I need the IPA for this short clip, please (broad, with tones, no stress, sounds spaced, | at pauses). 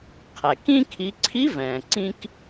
qʰ ɛ˩ k ĩ˥ kʰ i˩˧ ǀʰ i˧˥ v ɛ̃ː˩ ǀ ĩ˧ k